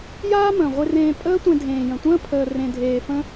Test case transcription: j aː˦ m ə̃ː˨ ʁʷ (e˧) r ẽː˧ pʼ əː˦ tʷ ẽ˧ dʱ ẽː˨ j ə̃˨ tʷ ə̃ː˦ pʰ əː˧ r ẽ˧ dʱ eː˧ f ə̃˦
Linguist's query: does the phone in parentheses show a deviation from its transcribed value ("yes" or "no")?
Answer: no